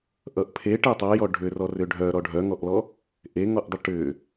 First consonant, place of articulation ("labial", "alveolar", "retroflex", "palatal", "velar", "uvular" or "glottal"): glottal